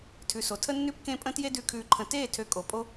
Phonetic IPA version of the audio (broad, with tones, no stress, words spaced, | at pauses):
tʰʉ˨so˨tʰə˦ nːʉ˦pkẽ˦pʼə̃˦ tje˦dʉ˧ kʰʉː˧ǃʰə̃˧ teː˦˨ tʰø˧kʼo˨ pʼo˦